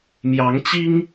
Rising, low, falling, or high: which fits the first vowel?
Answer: rising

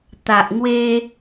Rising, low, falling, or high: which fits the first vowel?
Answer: low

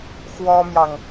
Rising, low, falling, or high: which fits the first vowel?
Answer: high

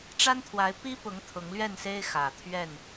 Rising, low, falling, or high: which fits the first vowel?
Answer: high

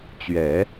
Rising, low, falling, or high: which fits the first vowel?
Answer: low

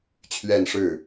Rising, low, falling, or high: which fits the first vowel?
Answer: falling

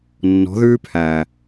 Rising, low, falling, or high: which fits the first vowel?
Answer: rising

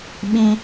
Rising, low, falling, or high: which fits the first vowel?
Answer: high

